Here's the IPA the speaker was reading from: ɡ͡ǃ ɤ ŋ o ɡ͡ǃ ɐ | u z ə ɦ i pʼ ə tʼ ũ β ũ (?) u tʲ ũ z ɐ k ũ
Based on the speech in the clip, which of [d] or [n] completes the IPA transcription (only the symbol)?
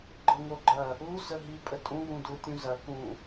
d